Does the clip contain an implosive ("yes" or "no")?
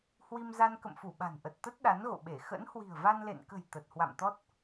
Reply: yes